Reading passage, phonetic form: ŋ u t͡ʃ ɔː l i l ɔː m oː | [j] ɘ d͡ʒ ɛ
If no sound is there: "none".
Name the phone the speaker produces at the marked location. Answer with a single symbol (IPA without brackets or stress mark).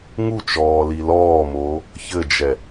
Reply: ç